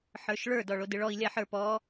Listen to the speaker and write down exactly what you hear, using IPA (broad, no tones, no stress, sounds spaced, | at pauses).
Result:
ħ ə˞ ʃ ɭ ə˞ d ɔ ɭ o d ɨ ɭ ɔ i̯ lʲ a ħ ə˞ p ɔ